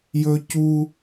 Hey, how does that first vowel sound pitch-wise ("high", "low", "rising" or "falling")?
low